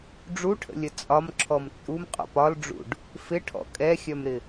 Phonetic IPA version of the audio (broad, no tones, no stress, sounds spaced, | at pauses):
ɖ͡ʐ u ʈʰ ə̰ lʲ ə t͡sʼ ɒ m ǁʰ ɔ m t͡sʼ u m qʼ ɔ̰ p ɒ l ɖ͡ʐ ṵ ɖ | f ɪ ʈʰ ɔ̰ kʼ ɛ xʲ œ m ɾ ɪ